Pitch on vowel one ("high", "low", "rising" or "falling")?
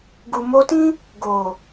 low